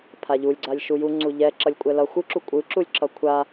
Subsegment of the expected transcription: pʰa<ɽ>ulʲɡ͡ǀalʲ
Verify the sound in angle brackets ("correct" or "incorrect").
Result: incorrect